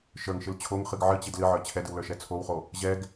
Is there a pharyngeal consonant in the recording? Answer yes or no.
yes